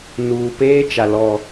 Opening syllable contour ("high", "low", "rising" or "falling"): low